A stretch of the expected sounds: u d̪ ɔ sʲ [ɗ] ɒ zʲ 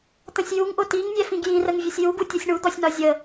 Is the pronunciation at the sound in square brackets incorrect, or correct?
incorrect